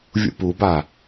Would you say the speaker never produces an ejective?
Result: yes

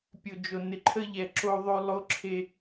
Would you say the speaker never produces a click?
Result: no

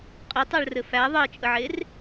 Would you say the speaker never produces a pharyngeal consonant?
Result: no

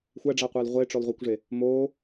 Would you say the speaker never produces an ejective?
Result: yes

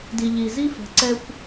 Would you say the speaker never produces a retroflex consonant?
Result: yes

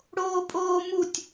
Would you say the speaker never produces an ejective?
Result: no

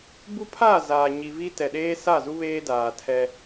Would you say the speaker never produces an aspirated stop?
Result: no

